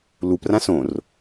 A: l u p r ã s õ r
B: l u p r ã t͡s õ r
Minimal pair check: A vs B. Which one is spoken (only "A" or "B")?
A